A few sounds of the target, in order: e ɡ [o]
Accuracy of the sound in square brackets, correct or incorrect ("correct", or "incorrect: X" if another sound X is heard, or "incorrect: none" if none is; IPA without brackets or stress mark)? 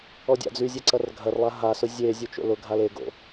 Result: incorrect: o̰